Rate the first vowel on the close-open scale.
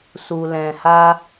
close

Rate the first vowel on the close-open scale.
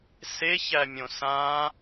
mid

